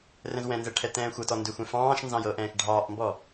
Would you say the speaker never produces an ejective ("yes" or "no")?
yes